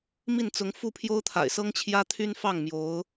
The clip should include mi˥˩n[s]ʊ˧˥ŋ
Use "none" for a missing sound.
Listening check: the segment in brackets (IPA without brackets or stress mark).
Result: t͡s